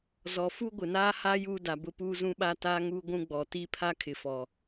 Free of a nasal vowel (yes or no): no